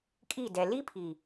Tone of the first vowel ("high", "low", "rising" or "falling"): falling